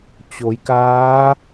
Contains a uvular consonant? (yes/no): no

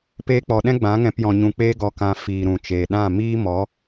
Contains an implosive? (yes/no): yes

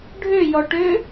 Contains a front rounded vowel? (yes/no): yes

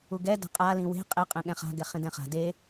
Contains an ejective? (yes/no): yes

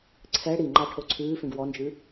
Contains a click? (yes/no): yes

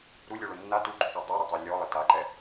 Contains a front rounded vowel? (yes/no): no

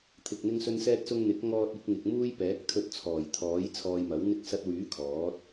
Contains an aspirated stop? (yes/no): yes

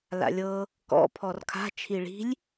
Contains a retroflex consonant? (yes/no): yes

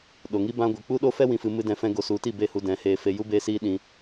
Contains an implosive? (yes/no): yes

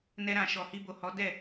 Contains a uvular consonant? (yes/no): no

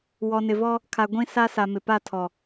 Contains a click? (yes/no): no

